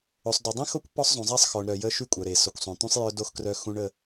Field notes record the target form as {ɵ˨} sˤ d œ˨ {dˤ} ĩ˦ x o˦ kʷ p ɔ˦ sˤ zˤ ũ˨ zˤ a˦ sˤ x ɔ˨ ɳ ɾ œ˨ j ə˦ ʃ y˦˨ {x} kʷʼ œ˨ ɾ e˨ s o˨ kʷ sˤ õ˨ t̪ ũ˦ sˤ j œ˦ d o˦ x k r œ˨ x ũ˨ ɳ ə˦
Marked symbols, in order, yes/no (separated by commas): no, yes, no